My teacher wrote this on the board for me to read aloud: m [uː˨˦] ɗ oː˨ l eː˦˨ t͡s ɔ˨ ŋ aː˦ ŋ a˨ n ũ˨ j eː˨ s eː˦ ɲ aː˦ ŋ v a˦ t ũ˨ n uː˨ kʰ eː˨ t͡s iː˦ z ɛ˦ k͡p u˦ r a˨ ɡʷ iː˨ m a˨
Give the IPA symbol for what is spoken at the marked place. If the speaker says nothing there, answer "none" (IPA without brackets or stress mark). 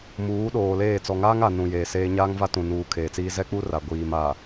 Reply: uː˨˦